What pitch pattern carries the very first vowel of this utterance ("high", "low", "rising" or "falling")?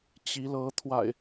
rising